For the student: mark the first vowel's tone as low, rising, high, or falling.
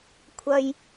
low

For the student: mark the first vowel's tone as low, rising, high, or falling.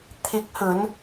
rising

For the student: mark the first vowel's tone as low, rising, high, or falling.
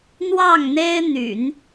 falling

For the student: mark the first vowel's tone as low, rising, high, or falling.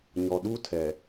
low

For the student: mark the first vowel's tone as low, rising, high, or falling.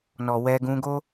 low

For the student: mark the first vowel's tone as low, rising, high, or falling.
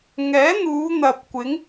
rising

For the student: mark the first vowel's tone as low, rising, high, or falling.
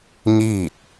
falling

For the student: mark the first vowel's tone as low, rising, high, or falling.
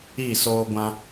falling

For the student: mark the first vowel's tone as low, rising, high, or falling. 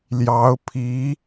rising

